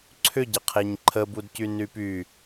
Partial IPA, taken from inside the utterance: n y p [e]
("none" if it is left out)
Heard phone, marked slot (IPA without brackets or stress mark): y